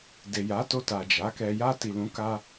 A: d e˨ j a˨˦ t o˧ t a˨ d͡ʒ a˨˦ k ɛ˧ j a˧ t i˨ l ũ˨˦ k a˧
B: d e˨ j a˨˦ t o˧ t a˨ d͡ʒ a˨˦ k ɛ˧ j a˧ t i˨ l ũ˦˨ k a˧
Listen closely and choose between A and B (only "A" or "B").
A